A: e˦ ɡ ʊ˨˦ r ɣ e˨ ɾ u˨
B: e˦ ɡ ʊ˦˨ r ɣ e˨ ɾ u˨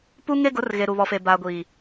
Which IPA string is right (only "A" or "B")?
A